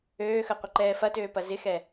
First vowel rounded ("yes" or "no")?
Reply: yes